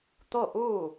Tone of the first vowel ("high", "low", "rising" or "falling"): falling